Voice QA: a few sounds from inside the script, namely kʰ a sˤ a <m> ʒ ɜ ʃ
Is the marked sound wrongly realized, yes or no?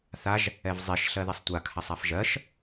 yes